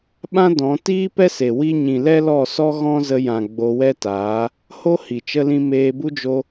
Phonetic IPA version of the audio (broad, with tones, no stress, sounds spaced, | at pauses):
ɓ ã˦ d ɔ̃˨˦ t iː˦ p ɛ˦ s e˨ w i˦ ɲ ĩ˨ l ɛ˦ l ɔ˦˨ s ɔ˦ ɣ ɔ̃˦ z ə˧ j ã˨ ɡ͡b o˧ w ɛ˦ t aː˨˦ | h o˦ h i˨ t͡ʃ ə˧ l ĩ˧ m eː˧ b u˦ d͡ʒ o˧